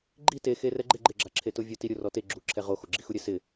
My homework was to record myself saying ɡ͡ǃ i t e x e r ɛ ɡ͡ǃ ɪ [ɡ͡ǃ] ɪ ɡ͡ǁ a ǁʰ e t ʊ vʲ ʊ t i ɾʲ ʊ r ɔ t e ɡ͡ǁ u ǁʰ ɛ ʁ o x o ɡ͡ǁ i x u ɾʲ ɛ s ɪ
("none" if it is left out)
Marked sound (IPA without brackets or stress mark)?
ɡ͡ǃ